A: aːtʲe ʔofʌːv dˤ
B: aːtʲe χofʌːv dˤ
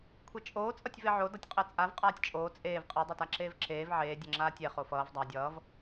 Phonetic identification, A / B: B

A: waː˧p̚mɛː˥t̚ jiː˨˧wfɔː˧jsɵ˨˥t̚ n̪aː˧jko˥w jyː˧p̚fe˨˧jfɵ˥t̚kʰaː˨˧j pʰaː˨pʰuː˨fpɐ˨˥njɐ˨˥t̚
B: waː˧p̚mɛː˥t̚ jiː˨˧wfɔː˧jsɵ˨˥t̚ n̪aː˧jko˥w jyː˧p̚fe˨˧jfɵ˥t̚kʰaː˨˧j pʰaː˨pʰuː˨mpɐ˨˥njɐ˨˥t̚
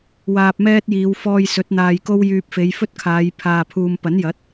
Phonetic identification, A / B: B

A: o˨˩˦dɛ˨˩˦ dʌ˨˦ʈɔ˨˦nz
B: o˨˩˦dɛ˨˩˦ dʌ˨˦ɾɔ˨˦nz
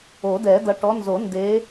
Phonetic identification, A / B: A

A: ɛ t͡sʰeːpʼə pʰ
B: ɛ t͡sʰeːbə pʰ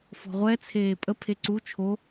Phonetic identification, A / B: A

